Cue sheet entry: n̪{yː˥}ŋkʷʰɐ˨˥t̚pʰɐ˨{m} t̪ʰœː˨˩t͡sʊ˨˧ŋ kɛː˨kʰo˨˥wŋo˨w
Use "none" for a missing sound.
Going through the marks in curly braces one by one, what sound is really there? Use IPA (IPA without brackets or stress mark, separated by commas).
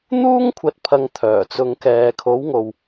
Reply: uː˥, ŋ